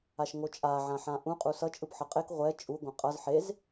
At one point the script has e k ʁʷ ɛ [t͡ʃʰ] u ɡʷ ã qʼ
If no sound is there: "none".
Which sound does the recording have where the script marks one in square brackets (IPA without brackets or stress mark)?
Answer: t͡ʃʼ